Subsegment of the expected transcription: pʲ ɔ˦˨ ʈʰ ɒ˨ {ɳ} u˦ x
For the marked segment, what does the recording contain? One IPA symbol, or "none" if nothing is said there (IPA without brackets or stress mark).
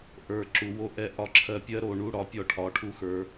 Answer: ʈʰ